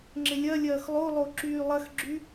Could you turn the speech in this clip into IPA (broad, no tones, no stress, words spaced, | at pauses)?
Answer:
ŋ͡ǁɪlʲɐlʲɐːx lˠolˠo ǁyːlˠɐxɡ͡ǁy